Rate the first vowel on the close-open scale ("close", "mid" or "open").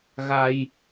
open